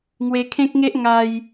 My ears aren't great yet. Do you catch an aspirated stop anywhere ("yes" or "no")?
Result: yes